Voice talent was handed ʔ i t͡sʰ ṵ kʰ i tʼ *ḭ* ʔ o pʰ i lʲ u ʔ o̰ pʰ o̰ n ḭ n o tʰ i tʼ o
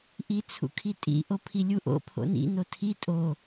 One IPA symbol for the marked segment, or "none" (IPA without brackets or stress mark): ḭ